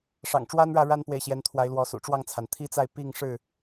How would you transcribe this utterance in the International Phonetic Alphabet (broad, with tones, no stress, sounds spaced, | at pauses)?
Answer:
ʂ ɑ̰˨˩ ŋ ʈ͡ʂ w a˦ n ɻ ä˥˨ ɻ a˦ n p w e˨ ɪ̯ ɕ j ɛ˨˦ n t̪ʰ w a˨˦ ɪ̯ l w ɔ˨˦ s ṵ˨˩ ʈ͡ʂ w ɑ˥˨ ŋ t͡sʰ a˩ n t̪ʰ i˦ t͡s a˥˨ ɪ̯ p i˥˨ ŋ ʂ ɻ̩˥˨